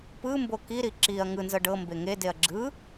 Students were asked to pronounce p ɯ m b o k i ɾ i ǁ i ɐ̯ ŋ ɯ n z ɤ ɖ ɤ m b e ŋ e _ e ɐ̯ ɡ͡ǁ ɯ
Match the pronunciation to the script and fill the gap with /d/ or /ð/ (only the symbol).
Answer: d